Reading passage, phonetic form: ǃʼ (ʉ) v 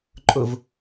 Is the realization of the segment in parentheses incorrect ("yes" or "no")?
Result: yes